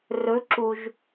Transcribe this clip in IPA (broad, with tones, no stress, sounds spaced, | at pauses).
r ɵ˧˥ ǁ u˧ ʒ